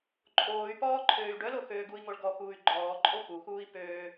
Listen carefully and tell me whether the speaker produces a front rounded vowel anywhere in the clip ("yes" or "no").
yes